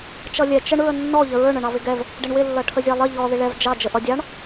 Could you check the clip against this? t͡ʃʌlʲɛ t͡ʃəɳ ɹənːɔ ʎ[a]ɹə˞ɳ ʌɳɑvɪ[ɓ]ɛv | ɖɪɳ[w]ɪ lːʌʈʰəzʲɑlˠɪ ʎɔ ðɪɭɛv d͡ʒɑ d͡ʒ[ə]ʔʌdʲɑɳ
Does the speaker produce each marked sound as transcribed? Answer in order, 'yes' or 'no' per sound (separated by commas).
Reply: no, no, yes, yes